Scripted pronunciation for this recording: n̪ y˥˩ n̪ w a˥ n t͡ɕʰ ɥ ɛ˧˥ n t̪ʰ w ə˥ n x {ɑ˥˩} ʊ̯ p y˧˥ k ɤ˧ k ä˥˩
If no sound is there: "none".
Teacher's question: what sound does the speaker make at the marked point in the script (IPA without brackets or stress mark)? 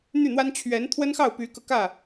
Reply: ɑ˥˩